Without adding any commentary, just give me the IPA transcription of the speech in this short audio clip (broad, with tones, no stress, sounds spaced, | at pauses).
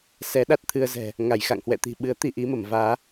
s ɛ˨˦ ɗ a˦˥ t̚ t̪ʰ ɨ˧ ə̯ z ɛ̤˨˩ | ŋ a˧˩ j x a̰˧˨ ŋ h w ɛ̰˧˨ t̪ i̤˨˩ ɓ ɨ˨˦ ə̯ t̪ i˧ ʔ i˨˦ m ə˧˩ m v aː˨˦